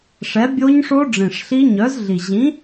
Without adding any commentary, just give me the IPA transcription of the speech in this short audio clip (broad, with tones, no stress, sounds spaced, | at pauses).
ʂ ɛ˨˥ bʲ o˦˥ ɲ ʂ o˦˥ ɖ͡ʐ ĩ˨˩ ʂ ɬ i˦˥ ɲ œ˨˥ z ɮ i˨˩ ʑ ĩ˨˥